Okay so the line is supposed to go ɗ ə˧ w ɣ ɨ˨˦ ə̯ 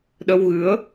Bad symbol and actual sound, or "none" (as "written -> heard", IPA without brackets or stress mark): none